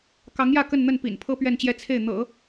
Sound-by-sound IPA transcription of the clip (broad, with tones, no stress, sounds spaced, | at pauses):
k ɑ˧˥ ŋ j ä˥˧ k ə˥˧ n n̪ ə˥˩ n p ḭ˨˩ n pʰ ɤ˥ p ɥ ɛ˥˧ n t͡ɕ j ɛ˥˧ t͡sʰ e˥˩ ɪ̯ n̪ ɤ̰˨˩˦